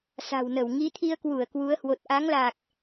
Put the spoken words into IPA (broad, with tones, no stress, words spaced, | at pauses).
sa̤˨˩wnə˧˩w ŋi˨˦t̪ʰi˧ə̯kwu˧˩ə̯ kwu˨˦ə̯hwo˨˩t̚ ʔa˨˦ŋlaː˨˩k̚